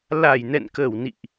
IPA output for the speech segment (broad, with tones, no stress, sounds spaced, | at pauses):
l a˧˩ j n ɛ̰˧˨ n k ə˧˩ w n ḭ˧˨ ʔ